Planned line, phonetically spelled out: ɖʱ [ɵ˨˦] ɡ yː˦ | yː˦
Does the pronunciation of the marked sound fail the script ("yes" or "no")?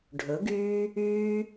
no